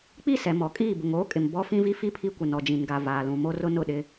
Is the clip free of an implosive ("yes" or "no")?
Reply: no